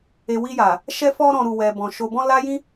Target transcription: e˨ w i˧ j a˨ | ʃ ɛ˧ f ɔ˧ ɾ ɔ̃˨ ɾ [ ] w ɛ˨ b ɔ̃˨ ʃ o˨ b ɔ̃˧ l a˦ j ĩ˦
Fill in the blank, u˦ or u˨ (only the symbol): u˨